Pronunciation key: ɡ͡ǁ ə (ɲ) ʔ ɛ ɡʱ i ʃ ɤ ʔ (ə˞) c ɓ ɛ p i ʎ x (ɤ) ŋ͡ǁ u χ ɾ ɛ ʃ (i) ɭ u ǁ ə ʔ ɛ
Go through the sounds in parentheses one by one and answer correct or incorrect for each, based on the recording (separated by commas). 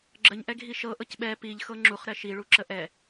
correct, incorrect, correct, correct